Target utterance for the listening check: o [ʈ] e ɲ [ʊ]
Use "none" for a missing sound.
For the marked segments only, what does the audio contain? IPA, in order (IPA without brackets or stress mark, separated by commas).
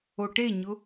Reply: ʈ, ʊ